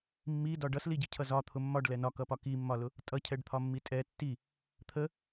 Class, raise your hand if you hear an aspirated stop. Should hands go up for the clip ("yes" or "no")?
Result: yes